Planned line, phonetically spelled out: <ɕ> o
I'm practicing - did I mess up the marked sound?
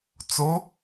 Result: yes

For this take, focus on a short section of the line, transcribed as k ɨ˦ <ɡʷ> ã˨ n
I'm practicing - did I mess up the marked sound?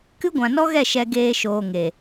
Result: no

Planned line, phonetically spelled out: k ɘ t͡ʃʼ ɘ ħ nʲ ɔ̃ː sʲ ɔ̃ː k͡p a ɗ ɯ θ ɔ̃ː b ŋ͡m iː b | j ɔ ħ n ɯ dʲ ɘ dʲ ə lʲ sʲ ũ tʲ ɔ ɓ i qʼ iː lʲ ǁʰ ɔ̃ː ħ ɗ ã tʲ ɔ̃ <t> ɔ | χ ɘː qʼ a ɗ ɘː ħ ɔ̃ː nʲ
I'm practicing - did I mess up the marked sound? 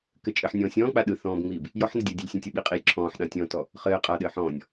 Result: no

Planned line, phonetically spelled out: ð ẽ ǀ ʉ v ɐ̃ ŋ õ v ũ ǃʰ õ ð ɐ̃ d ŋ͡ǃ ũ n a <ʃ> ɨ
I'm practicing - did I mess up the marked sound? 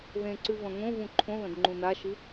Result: no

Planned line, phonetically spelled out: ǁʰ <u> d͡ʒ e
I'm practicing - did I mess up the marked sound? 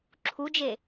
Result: no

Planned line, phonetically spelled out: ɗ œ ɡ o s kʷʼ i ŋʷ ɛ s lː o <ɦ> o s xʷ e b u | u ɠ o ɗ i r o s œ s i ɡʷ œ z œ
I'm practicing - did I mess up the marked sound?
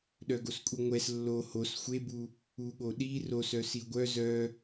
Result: yes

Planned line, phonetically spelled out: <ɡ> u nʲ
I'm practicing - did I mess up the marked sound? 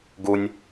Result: no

